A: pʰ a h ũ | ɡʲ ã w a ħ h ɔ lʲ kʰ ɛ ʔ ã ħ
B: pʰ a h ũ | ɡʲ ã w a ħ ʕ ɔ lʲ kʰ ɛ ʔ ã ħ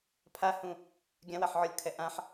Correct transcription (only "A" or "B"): B